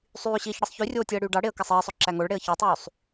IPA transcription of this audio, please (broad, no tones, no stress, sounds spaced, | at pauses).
sˤ yː ɕ iː ç ɽ ɯ sˤ ç y rʲ oː tʲ ɯ ə̯ ɽ yː ɖ ɑ ɽ e ə̯ k æ sˤ iː sˤ ø ǁ æ ŋ o ɭ ɽ e ə̯ ç ø tˤ yː sˤ